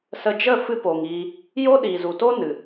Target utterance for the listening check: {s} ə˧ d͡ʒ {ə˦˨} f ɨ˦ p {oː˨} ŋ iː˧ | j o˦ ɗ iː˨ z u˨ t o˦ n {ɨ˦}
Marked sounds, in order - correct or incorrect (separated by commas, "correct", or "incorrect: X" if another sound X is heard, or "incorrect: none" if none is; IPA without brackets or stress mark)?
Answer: correct, correct, correct, incorrect: ɨ˨